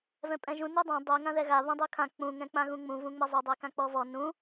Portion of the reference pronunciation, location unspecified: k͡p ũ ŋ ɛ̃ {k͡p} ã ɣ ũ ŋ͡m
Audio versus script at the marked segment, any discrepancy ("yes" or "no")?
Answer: no